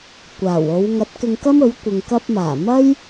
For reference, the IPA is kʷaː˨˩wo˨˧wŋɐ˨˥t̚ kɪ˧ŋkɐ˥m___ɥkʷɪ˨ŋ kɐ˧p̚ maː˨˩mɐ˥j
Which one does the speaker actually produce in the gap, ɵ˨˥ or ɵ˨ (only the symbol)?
ɵ˨˥